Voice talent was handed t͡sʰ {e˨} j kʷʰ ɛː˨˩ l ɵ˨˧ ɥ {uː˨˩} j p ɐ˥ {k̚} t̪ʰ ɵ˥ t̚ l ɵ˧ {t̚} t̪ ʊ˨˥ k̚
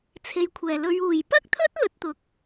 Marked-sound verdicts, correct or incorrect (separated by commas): incorrect, correct, correct, correct